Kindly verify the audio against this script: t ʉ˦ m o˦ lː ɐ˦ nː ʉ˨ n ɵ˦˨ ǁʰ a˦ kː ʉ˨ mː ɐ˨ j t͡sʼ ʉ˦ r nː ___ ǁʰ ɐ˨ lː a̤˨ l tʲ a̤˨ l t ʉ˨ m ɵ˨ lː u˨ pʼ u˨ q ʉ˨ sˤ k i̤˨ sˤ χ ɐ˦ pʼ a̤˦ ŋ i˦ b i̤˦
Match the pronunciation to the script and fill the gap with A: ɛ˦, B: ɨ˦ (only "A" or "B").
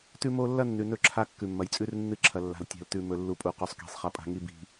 B